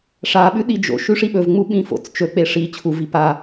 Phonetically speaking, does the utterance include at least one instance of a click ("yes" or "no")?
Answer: no